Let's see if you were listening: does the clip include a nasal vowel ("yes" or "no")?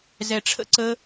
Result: no